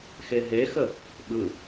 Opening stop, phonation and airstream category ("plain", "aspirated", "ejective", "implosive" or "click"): implosive